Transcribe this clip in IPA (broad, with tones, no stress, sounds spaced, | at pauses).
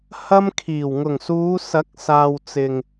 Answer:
h ɐ˥ m kʰ iː˨˩ w ŋ ʊ˨˩ ŋ s uː˨˧ s ɐ˨˥ k̚ s aː˨ w t͡s ɪ˨ ŋ